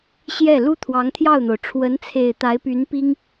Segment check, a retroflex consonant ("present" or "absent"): present